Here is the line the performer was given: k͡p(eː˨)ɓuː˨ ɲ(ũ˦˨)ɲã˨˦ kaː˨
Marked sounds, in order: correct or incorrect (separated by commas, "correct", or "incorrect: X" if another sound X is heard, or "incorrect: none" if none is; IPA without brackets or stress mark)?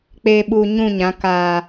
correct, correct